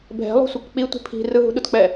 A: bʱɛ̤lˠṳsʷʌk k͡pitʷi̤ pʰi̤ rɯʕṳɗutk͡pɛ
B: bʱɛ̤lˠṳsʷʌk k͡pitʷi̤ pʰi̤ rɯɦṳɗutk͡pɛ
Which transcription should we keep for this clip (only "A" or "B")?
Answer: B